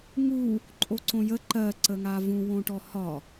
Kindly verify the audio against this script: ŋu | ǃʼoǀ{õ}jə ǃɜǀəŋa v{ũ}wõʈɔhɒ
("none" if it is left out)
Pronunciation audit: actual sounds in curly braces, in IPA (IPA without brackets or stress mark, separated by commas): õ, ũ